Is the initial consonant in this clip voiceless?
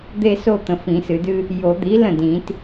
no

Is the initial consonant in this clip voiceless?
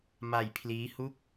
no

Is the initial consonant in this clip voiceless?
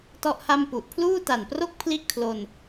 yes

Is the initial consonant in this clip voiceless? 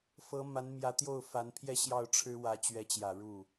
yes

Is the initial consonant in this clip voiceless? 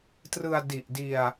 yes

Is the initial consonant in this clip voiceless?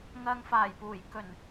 no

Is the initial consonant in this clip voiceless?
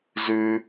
no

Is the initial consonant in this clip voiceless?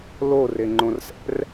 no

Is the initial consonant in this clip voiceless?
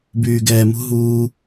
no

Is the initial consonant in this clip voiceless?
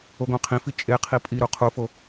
no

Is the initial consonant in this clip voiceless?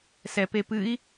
yes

